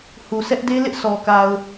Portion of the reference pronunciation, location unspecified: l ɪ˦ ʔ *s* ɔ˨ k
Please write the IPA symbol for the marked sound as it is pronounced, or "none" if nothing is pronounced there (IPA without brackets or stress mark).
s